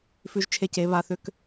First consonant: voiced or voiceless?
voiceless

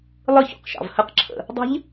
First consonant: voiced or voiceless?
voiced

